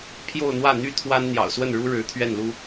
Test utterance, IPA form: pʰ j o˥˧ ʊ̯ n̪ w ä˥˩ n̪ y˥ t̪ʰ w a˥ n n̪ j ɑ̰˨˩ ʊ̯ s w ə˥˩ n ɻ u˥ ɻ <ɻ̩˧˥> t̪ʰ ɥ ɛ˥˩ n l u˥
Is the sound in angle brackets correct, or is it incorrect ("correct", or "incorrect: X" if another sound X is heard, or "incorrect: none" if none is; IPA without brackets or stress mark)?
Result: correct